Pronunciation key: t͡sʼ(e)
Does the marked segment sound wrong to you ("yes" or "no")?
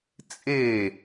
no